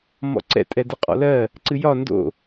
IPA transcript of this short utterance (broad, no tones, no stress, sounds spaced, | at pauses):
m ɔ̰ ǀ ɛ̰ tʼ ɛ d ɨ qʼ ɔ̰ l ɜ | ǀ ɨ j ɒ n d o̰